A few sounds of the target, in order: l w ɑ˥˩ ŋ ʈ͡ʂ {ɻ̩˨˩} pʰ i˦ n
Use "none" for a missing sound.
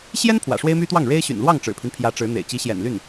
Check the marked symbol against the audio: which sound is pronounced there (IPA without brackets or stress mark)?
ɻ̩˨˩